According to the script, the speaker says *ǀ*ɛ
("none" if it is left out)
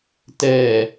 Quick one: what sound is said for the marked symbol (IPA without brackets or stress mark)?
t